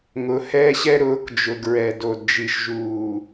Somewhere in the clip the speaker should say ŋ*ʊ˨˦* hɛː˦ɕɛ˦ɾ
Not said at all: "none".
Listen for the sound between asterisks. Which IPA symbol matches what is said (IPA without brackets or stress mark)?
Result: ʊ˨˦